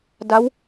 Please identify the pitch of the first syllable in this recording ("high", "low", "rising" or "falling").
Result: rising